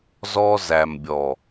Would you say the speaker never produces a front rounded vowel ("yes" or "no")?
yes